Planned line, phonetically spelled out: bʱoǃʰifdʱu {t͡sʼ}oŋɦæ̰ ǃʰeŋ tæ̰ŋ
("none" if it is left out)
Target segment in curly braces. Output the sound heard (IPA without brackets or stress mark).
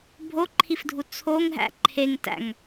t͡sʰ